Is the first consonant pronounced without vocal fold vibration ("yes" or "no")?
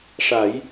yes